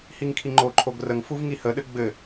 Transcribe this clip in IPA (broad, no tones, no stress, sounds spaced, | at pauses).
h i ŋ kʰ i ŋ͡ǃ o ǃʰ o ɡ r ə ŋ f u v ŋ i h ə ɗ ɘ ɡ͡b ɘ